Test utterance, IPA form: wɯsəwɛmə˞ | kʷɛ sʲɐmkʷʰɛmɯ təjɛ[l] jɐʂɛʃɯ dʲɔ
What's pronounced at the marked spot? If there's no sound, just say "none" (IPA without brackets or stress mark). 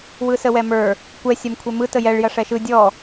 ɭ